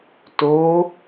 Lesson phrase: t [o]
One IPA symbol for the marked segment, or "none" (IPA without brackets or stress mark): o